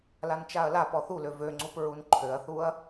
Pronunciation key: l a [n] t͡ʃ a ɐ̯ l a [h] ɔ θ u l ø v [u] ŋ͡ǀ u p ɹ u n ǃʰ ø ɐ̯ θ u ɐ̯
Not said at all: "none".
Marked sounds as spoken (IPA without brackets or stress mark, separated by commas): n, p, ø